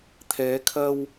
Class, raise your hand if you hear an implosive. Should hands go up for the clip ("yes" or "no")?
no